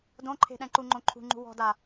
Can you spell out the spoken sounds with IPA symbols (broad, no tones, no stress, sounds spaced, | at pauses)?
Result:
d õ ǃʰ e̤ ɗ ɛ̃ ǃ u ŋ͡ǃ õ ǃʰ ṳ ŋ͡ǃ ṳ w ɔ̤ d a